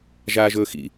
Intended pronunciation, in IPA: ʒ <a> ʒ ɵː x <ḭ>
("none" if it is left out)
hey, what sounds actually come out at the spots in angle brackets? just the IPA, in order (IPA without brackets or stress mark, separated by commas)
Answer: aː, ḭ